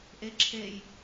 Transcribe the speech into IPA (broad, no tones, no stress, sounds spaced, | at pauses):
ʔ e ǁʰ e j